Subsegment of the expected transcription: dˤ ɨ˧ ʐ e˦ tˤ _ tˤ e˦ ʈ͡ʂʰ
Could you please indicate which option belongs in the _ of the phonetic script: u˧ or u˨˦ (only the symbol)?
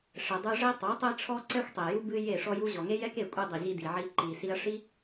u˨˦